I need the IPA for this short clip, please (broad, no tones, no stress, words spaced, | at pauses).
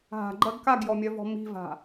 ɦa̤ɡ͡ǃɜɡ kaɡjɔmʲœvɔ̤ mi̤va̤